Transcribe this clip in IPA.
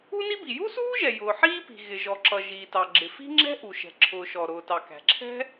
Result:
u˥ n i˥ b i˩ j u˥ s uː˥ ʒ ɛ˩ j ʊː˩ ħ iː˥ p i̤˩ ɣ ɪ˩ ʒ ɔ˩ ǁ ʌ˩ ʒ iː˩ t ɑ˩ ɡ͡ǁ ɪ˩ f i̤˥ ŋ͡ǁ ɛ̤˥ ʔ u˩ ʃ ɛ̤˩ ǁʰ ʊː˩ ʃ ɔ˩ ɾ ʊː˩ t ɑ˩ k æ̤˩ ǁʰ ɛ̤˥

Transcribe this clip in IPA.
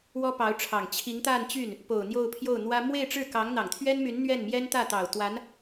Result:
w ɔ˥ p ɑ˧˥ ʊ̯ ʈ͡ʂʰ ɑ˨˩ ŋ t͡ɕʰ i˧˥ ŋ t̪ a˥˧ n t͡ɕ y˥˩ n | p o˨˩ ʊ̯ n̪ j o˥˧ ʊ̯ pʰ j o˥˩ ʊ̯ n̪ w ä˥ m w e˥˧ ɪ̯ ʈ͡ʂ ɻ̩˥˩ k ɑ˧˥ ŋ n̪ ɑ˨˩ ŋ t̪ʰ ɥ ɛ˥ n m y˧˥ n n̪ ɥ ɛ˥˩ n m j ɛ˥ n t̪ ä˥˩ t̪ ɑ˨˩ ʊ̯ t̪ w a˧˥ n

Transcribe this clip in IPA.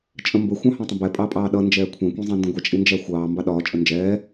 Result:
t͡ʃʼ ə̃ m b ə xʷ ɑ̃ h ɑ̃ tˤ ə̃ b ɛ pʼ ɑ pʼ ɑː ɗ ʌ n d͡ʒ ɛː kʷʰ ɛ̃ kʷ ĩ zˤ ɑ̃ n d ə̃ ɡʷ ɛ t͡ʃʼ i n d͡ʒ æ xʷ ɑː m b ɑ ɗ ɒː t͡ʃʼ ə n d͡ʒ ɛː

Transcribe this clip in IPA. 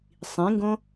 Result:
sˤ ĩ ŋ ɡ õ

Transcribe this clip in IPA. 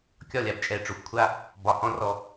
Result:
kʲ ɒ˦˨ lʲ a˨ b t͡ʃʼ ɛ˨ ʈ͡ʂ o˨ xʷ kʷʰ a˦ | b ɒ˨ h ɔ̃˦ r ɔ˧

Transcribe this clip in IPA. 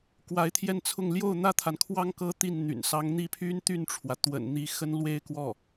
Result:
k w a˧˥ ɪ̯ t̪ʰ j ɛ˥˧ n t͡sʰ ʊ˥˧ ŋ l j o˥˩ ʊ̯ n̪ ä˥ t̪ʰ a˨ n kʰ w ɑ˥ ŋ k ɤ˥ t̪ i˥˩ n n̪ y̰˨˩ n s ɑ˧˥ ŋ n̪ i˥˩ pʰ y˥ n t̪ y˥˩ n ʈ͡ʂʰ w ä˩ t̪ w ə̰˨˩ n n̪ i˧˥ x ə˥ n l w e˥ ɪ̯ k w ɔ˥˩

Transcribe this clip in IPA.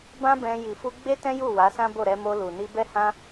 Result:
b ã˦ b ɛ̃˧ j i˨ f u˧ ɡ͡b e˦ t ɛ̃˦ j u˦˨ w a˨˦ s ã˦ b o˦˨ ɾ ɛ˧ m o˧ l u˨ n i˧ b ɛ˦ h ã˦

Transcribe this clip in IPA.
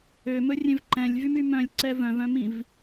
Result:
ø m ɵ rʲ ẽ v ǃ ɛ̃ lʲ v y m y m œ̃ lʲ ǀ ɛ v œ̃ v œ̃ m ĩ v

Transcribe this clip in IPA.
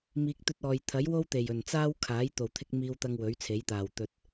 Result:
m iː˨ k̚ t̪ ɵ˧ t̚ ɔː˨ j t̪ʰ ɐ˨˥ j w o˥ w t̪ e˨˩ j ɵ˨˩ n t͡s aː˥ w kʰ aː˨˥ j t̪ o˨˩ w t̪ʰ ɪ˧ k̚ m iː˧ w t̪ ɐ˧ ŋ w ɵ˨˥ ɥ t͡sʰ e˨˥ j t̪ aː˨˩ w t̪ ɵ˨ t̚

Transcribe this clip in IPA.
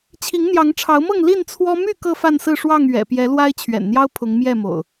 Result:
t͡ɕʰ i˨˦ ŋ n̪ j ɑ˨˦ ŋ ʈ͡ʂʰ ɑ˨˦ ʊ̯ m ɤ˥˨ ŋ l i˥˨ n t͡sʰ w ɔ˦ m y˥˨ k ɤ˥˨ f a˥˨ n s ɹ̩˥˨ ʂ w ɑ˥˨ ŋ ɥ ɛ̰˨˩ p j ɛ˨˦ l w a˦ ɪ̯ t͡ɕʰ ɥ ɛ̰˨˩ n n̪ j ɑ˦ ʊ̯ pʰ ʊ˨˦ ŋ m j ɛ˥˨ m o̰˨˩ ʊ̯

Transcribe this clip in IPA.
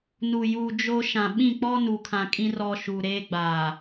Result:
n u˨ j uː˨ d͡ʒ o˦ ʃ ã˨ ɓ ĩ˦˨ k͡p ɔ˦ n u˨ kʰ ã˨ kʼ ĩ˦ r ɔ˨ ʃ u˨ ɾ eː˦ ɡ͡b aː˨

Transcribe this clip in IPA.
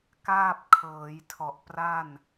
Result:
k aː˥˩ p̚ kʰ ɤː˩˦ j tʰ ɔ˨˩ ʔ p r a˥˩ n

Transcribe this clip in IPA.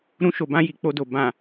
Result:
ɾ ũ˧ ʃ o˨ b ã˧ j i˨ k͡p o˧ d o˨ b ã˨

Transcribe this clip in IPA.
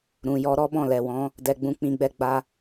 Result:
ɾ ũ˨ j ɔ˧ ɾ ɔ˦ b ɔ̃˦˨ l ɛ˨ w ɔ̃˨˦ | d ɛ˨ ɡ͡b ũ˨˦ k͡p ĩ˧ ɡ͡b ɛ˧ ɡ͡b a˧

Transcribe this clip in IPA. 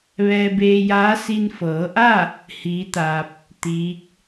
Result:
ʋ ɛː˧ b eː˧ j aː˧˥ s i˧ n f ɤː˩˧ ʔ a˥˨ | h iː˧˥ t̪ a˧ p̚ | t̪ iː˧˥ k̚

